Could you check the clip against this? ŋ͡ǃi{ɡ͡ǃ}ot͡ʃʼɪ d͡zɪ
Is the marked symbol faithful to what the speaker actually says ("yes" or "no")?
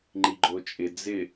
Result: yes